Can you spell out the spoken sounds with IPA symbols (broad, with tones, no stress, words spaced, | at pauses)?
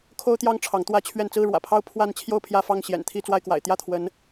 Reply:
kʰo˦ʊ̯t̪jɑ˦ŋ ʈ͡ʂʰɑ˨˦ŋt̪wä˦t͡ɕʰɥɛ˥˨n t͡sɹ̩˥˨ɻwä̰˨˩pʰɑ˦ʊ̯ pʰwa˥˨n t͡ɕʰjo˥˨ʊ̯pʰjä˥˨fɑ˥˨ŋ ɕjɛ̰˨˩nt̪ʰi˥˨ t͡swa˥˨ɪ̯kwa̰˨˩ɪ̯ t̪jä˥˨t̪ʰwə˨˦n